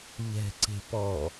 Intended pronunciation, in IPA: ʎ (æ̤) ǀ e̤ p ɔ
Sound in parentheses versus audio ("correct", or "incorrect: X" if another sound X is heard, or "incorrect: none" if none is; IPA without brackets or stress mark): incorrect: ɛ̤